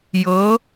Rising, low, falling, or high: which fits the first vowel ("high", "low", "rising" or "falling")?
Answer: rising